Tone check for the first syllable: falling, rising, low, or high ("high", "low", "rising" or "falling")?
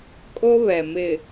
high